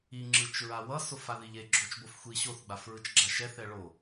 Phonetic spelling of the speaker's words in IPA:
i ŋ͡ǁ ɯ t͡ʃ ɹ a w ʌ s o f a ð i ʎ e ɡ͡ǁ o t͡ʃ b o f xʷ i ɕ o θ ɡ͡b a f ɹ ɯ t͡ʃ ɡ͡ǁ a ʃ ɛ θ ɛ ɭ o

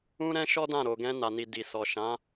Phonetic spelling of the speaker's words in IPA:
ũ˦ ɾ ɛ̃˦ ʃ ɔ˦ d ã˦˨ ɾ o˨ ɡ ɛ̃˧ n a˨ n i˨ d i˨ s ɔ˨ ʃ ã˨˦

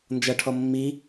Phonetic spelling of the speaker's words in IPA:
n d͡ʒ ʌ ʈʰ ɔ mː i

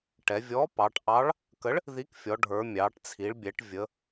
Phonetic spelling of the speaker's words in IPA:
ʈ ɛ˩˧ vʲ ɔ˨˥ p ɑ˩˧ ʈ ʔ ɑ˨˥ ɭ | k ə˨˥ ɭ | ð i˨˥ k fʲ ɔ˩˧ ɖʱ ə˞˩˧ mʲ ɑ˩˧ ʈ t͡sʰ i˩˧ ɭ bʲ ɛ˩˧ ʈ vʲ ə˩˧

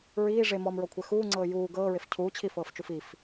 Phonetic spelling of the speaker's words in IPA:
ɹ iː ʐ e m ɔ m ɹ ɔ kʷʰ ɛ x uː ŋ͡ǀ ɤː j uː ɡ ɤː ɹ e f cʰ uː t͡ɕʰ i f ɤː f t͡ʃ u f i f

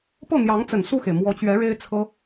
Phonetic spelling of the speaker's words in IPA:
p ɤ˥˩ n̪ j ɑ˧˥ ŋ t͡s ə˨˩ n s u˥˩ x e˩ ɪ̯ m w ɔ˧˥ t͡ɕ ɥ ɛ˧˥ ɻ e˥ ɪ̯ t͡sʰ ɤ˥

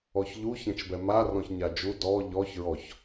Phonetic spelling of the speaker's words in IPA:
ɔ ç ʎ u ç ɛ̃ t͡ʃ b ɛ m a r ɔ̃ ç ɲ a d͡ʒ u d ɔ ʎ ɔ ç ɹ ɔ ç

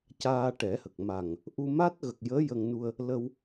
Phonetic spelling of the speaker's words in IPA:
c aː˧ ʈ ɛ˨˩˦ h ə˨˩ k̚ m a˨˩ ŋ | ʔ u˧ m a˦˥ t̚ ɣ ə˨˩ k̚ j əː˧˥ j ə˧ ŋ n u˧ ə̯ | l ə˧ w

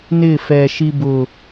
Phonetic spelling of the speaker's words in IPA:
n ɪː˦˨ f ɛː˨ ʃ i˧ b ʊː˨

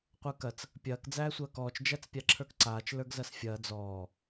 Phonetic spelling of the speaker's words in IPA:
qʷ ə˞ k ɐ t͡s | pʲ ɐː k d͡z æː sʷ ɐː k ɔː t͡ʃ d͡ʒ æ t͡s pʲ a ǁʰ ə˞ k ǀ aː t͡ʃ l ə˞ ɡ z ɐ s fʲ ɐː d͡z ɔː

